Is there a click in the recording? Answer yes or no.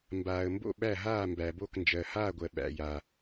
no